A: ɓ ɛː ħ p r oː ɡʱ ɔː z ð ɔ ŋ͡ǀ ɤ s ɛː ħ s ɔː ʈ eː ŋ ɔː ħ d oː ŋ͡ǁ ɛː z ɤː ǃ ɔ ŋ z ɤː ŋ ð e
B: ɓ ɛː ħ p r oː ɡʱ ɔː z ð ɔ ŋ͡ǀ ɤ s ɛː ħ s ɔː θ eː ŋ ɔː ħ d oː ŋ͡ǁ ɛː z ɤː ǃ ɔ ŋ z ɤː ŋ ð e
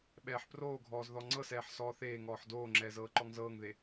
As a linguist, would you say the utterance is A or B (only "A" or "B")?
B